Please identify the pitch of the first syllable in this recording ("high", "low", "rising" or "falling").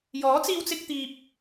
rising